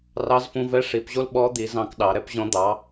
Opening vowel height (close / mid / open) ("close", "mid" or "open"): open